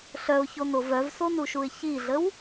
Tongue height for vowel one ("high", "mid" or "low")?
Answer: mid